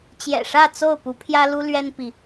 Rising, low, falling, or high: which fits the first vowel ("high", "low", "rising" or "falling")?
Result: low